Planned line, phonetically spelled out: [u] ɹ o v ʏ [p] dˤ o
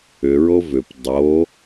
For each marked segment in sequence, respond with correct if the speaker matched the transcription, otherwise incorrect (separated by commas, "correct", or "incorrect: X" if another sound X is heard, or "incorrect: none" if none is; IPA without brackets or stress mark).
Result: incorrect: ʏ, correct